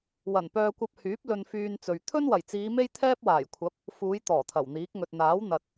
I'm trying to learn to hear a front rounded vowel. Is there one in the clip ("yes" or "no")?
yes